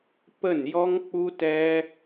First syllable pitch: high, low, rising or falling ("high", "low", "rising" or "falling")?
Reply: falling